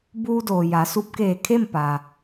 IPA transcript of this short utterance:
buː˧doː˩ ja˩˧su˧p̚keː˧˩ kʰe˥˨m pa˩

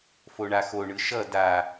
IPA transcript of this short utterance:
foɳaxo ɳɯʃʌ da

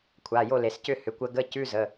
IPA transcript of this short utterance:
kʷʰa˩˧˩jo˥˩ le˩scʏ˥˩hʏ˩˧˩ kʷə˧ɡə˧˥˧ cʉ˧˥˧zə˩˧˩

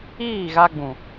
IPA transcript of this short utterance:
iː˦˨ɣa˧ɡ͡bũ˨

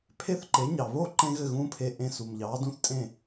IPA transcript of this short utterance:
pʰe˥˩θǃe˩˥ ɲɑ˩βo˥˩ǃẽ˧ ɣɘ˥˩ɣũː˥pʰeː˧ ʔẽ˧su˩mʎɑː˩˥dũ˥θ tʼẽ˥˩

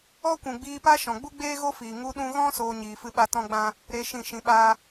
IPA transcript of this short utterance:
ɔ˦kʷũ˨ ɡ͡biː˧pa˦ʃɔ̃˨ ɡ͡bu˦ɡ͡beː˦ɣo˦fiː˨ ŋu˧ɗũ˧ɣɔ̃˦ soː˧ɲiː˨fɨ˧ɓa˧ tɔ̃˦ɡ͡bã˦ | ɾe˧ ʃĩ˦˨ʃĩ˧ɓaː˦

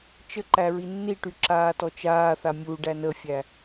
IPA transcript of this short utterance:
t͡ʃəǃæ ɹinːiʈy ǁaːtɔt͡ʃaːθa mʲu ɖænəfʲæ

